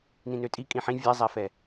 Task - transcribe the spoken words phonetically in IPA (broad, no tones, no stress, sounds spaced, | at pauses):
n ĩ n ø tʼ i kʼ ĩ ħ ĩ vʲ ɛ zˤ ɛ f ɛ